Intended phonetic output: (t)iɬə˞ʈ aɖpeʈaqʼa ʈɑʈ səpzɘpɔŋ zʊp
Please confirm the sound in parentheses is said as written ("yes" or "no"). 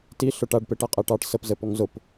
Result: yes